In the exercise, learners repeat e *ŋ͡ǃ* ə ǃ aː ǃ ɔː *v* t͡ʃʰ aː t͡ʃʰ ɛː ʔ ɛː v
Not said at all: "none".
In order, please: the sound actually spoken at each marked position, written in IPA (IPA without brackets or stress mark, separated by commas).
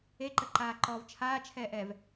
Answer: ǃ, v